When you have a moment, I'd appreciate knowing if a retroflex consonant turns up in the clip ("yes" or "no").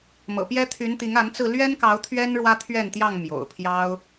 yes